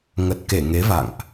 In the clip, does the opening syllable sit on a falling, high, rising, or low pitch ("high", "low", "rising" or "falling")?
low